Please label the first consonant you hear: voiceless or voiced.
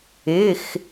voiceless